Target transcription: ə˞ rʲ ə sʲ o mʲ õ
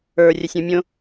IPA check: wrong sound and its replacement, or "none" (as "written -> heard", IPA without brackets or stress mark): o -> õ